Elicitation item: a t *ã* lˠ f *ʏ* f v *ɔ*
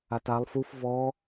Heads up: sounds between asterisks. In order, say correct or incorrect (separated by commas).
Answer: incorrect, incorrect, correct